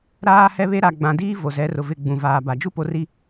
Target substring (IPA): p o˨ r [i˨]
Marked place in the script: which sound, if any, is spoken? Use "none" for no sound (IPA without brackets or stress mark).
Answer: i˨